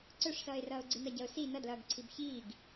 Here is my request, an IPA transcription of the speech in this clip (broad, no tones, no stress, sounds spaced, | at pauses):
ǀ œ ʂ s ʌː ɪ̯ r ʌː ʊ̯ ɡ͡ǀ i n ʌ ɟ ʌ ʊ̯ s i n ʌ d l ʌː ɡ ǀʰ i b ç iː ɡ